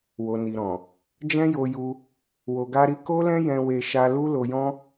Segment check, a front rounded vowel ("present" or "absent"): absent